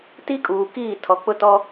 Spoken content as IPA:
t i˦ kʼ uː˨ k iː˦˨ tʰ ɔ˨ k͡p ʊ˦ t ɔ˦

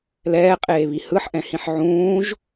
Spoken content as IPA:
l ɛː qʼ eː β i h ɯ ħ ʔ ɛ̃ h ĩ ħ ʕ ũː ʒ

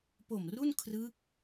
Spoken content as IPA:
p o˨˩ m r u˥˩ n kʰ r ɯ˦˥ k̚

